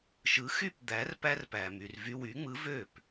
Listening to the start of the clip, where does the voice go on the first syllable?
rising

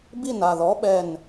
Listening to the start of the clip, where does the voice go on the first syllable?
falling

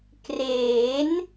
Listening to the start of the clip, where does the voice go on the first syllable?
rising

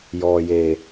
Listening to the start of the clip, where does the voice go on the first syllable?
low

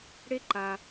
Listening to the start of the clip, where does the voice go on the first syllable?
high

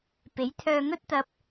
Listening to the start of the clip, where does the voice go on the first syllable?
rising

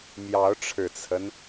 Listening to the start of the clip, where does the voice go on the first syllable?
rising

